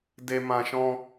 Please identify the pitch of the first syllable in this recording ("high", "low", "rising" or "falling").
high